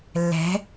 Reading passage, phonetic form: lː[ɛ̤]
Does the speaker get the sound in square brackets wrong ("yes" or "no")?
no